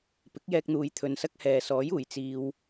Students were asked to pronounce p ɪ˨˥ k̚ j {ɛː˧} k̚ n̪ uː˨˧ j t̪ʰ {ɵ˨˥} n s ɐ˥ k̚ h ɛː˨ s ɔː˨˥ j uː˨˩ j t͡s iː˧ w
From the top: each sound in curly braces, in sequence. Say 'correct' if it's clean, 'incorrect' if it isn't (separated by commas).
correct, incorrect